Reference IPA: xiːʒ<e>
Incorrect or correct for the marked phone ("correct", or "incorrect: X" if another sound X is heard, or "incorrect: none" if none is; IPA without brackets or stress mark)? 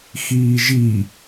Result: incorrect: i